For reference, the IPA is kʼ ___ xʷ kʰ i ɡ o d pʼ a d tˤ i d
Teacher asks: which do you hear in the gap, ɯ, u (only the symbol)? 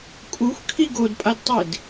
u